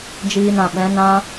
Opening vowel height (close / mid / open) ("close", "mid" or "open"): close